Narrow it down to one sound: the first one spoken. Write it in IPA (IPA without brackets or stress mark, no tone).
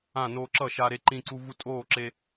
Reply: ã